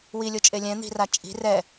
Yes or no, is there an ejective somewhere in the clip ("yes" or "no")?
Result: yes